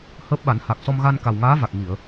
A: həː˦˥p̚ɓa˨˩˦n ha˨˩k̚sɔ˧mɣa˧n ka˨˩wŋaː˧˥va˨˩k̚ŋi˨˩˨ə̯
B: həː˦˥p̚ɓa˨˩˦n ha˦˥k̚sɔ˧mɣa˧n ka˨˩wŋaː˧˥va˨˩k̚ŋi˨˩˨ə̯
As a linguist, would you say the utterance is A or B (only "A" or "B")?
A